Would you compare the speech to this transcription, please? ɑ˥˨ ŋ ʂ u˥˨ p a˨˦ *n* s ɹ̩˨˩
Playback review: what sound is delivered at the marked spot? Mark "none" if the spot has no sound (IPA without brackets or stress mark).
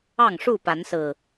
n